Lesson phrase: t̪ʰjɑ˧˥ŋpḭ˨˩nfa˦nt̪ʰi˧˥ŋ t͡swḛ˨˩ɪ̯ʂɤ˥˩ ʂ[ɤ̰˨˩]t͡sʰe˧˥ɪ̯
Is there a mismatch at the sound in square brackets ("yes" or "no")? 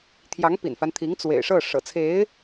no